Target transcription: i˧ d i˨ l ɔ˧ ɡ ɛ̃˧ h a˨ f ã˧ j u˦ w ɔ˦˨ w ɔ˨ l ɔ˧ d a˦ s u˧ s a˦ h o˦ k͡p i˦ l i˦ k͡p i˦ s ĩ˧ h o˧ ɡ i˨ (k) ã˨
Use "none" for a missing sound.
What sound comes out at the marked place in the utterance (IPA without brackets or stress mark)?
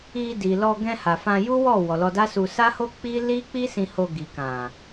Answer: k